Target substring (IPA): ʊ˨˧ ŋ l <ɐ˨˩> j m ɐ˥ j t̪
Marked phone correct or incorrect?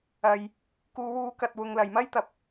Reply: incorrect